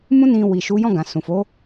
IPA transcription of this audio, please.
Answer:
m ũ˦ n ĩ˧ w i˨ ʃ u˨˦ j ɔ̃˦˨ ɡ ã˨ s ũ˨ f o˨˦

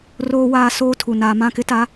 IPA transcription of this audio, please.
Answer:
r oː˦ w aː˦ s oː˦ tʰ u˨ n aː˨ m ã˦˨ k ɪ˦ t a˨˦

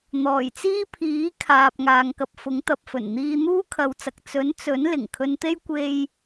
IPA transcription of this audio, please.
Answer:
n̪ ɔː˨˩ j t͡s iː˥ pʰ iː˨˥ kʰ aː˨ p̚ ŋ aː˨ ŋ k ɐ˧ p̚ f ʊ˨˥ ŋ t̪ ɐ˨ p̚ f ɵ˨˩ n n̪ iː˧ n̪ uː˥ kʰ ɐ˨˧ w t͡s ɐ˨ k̚ t͡s ɵ˨˥ n t͡s ɵ˨˥ n l ɪ˨˩ ŋ kʰ ɵ˧ n t̪ e˥ j kʷ e˥ j

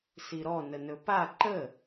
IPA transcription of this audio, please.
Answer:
s i ɾ ɔ n ə n ɵ p a ǃ ə

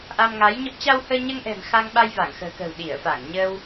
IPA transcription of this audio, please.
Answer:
ʔ a˧ m ŋ a˨˦ j ɲ ə˦˥ p̚ t͡ɕ a˧ w h əː˧ ɲ əː˧ ŋ ʔ ɛ̤˨˩ m x a˧ ŋ ɓ a˧ j v a˧˩ ŋ x ə̤ː˨˩ k ə̤ː˨˩ w ɗ i˧˩ ə̯ f a˧˩ ŋ ɲ ə˧ w

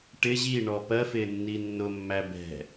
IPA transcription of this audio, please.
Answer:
ʈ ɪ ʑ i ɳ ɔ p ɜ f ɪː nː i nː ʊ mː æ b ɛ̤

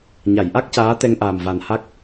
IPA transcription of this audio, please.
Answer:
ɲ a˨˩˨ j ʔ a˦˥ k̚ c aː˧˥ t̪ ɛ˧ ŋ ʔ aː˨˩ m v a˨˩ n h a˦˥ k̚

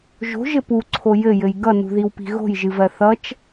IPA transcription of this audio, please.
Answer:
ʒ o̤ ʒ ɘ p u ǀʰ o j ɘ j ɘ j ɡ ʌ n ṳ ð i w p i̤ ɣ o̤ j ʒ ɨ v ɜ θ ʌ t͡ʃ

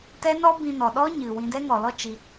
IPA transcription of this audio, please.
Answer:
t ɛ˦ n ɔ˦ b ĩ˧ n ɔ˨ ɗ ɔ˦ ɲ ɨ˨ w ĩ˧ d ɛ˦ ŋ ɔ˨ l ɔ˦ t͡ʃ i˧

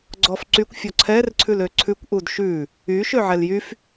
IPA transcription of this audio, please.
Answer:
ɡ͡ǀ ɔ f ǀ y kʷ fʲ ɔ ǀʰ ɛ r ǀʰ ʉ l ø ǀʰ ʉ kʷ ʔ u d ʃ ʉ | y ʃ ø ʕ ɛ l j y f

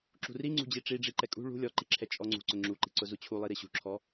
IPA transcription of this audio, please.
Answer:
ǁ ṳ r i ŋ͡ǀ ṳ d͡ʑ i ʈ͡ʂ i ɖ͡ʐ i ǃ ɛ kʼ ṳ ɭ ṳ lʲ ɔ ǃ i ǁʰ ɛ t͡ʃʼ ɔ ŋ͡ǀ ṳ ǀ ʊ ŋ͡ǁ u ǃ i̤ ǀ ʊ z u t͡ɕʰ u lˠ i ɾ i ɕ ṳ ǁʰ ɔ

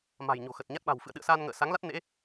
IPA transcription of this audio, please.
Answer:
m a̤˨˩ j ɲ o̤˨˩ x ə˨˩ t̚ ɲ a˦˥ t̚ ɓ a̤˨˩ w f ɨ̰˧˨ ə̯ ɗ ɨ̰˧˨ ə̯ s a˧ n ŋ ə̰ː˧˨ s a˨˦ ŋ l a˦˥ t̚ n ḛ˧˥

